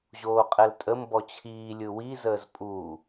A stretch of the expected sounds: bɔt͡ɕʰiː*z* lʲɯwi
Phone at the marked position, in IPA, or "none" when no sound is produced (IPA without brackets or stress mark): none